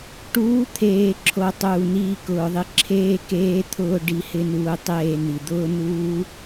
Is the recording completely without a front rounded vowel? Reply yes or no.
yes